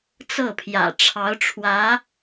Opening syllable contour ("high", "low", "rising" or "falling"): falling